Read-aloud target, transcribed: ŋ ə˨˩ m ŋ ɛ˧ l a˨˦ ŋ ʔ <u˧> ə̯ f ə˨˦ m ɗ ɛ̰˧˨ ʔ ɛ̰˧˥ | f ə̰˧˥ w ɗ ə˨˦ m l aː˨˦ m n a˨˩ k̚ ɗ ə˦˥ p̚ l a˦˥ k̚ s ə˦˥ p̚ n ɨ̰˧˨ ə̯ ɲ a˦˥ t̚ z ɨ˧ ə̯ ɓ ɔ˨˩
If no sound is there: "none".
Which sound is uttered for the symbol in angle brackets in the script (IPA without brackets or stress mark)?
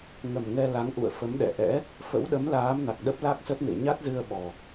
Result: ṵ˧˨